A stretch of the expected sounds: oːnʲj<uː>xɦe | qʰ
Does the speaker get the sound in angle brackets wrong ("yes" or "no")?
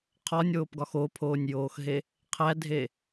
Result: yes